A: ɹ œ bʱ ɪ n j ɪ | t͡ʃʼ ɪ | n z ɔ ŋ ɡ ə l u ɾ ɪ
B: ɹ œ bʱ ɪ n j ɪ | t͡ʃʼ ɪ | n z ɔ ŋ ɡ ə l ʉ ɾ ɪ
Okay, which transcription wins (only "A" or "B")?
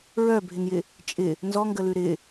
B